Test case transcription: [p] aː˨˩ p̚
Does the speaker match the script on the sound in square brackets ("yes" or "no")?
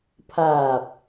no